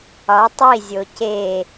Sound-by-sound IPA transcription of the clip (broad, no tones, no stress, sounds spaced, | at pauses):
ɒ tˤ i zʲ o c e